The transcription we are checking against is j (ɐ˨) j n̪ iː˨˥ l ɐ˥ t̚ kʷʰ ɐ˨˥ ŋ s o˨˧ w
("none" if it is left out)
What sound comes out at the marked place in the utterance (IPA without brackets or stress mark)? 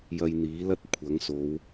ɐ˧